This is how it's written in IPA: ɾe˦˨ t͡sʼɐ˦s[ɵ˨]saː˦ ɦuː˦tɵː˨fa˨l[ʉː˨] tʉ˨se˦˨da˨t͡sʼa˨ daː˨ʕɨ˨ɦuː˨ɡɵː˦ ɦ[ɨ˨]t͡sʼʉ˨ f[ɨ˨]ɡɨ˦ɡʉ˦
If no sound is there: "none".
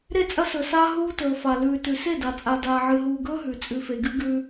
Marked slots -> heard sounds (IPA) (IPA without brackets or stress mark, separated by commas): ɵ˨, ʉː˨, ʉ˨, e˨